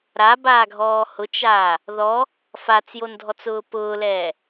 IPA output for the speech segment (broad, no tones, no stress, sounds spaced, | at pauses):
ɾ a b aː ɡʱ ɔː h ʊ t͡ʃ aː | ð ɔ | f a t͡s j o n dʱ ɔ t͡s ʊː p ʊː l ɛː